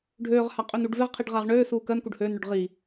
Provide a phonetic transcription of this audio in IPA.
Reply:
ɖʱøːʁha qʼønuɖveʁqʰiɖ ʁaʁɳøːsuː kɜnkuɖ høːnɳøɖ ʁi

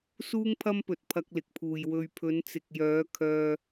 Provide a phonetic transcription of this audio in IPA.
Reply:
suː˥ŋpʰɐ˥mpɵ˨t̚ pʰɐ˧k̚lɪ˨k̚pʰuː˨j wɵ˨ɥpʰɵ˨˧nt͡sɪ˨k̚jœː˨˧ kʰœː˧

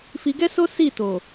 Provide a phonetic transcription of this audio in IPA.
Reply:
fi˧ɡɛ˦so˦ si˦˨to˨

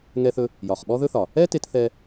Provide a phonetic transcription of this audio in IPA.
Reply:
ŋɛ˧θɵ˧ | jɒ˩χɓɔ˥ðɵ˥θɒ˩ | ɛ˥te˧t θɛ˧

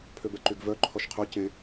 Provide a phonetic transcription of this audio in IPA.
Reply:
pʰøbɛǃyɡvœ ǃʰɔʃqʰɵ cẽ

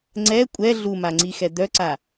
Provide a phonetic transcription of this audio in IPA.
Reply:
ŋ͡ǀɛ kʷʼɛ ɮumaŋ͡ǀixɛ d̪œǀa

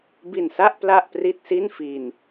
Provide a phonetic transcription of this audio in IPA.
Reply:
bi˨˩nsa˥˩ʔ pla˥˩ʔpri˥˩t̚si˥˩n fi˧n

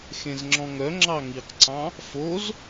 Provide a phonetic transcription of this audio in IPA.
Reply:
xẽzŋ͡ǁɔ̃ŋœ ŋ͡ǁɑŋiqǀɑ̃ | foz

